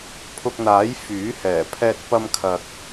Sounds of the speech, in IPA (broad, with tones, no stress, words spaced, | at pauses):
pʰʊ˧k̚n̪aː˨˥j fyː˨˥hɛː˨˩ pʰɛː˧t̚pɐ˧mkʰɐ˨k̚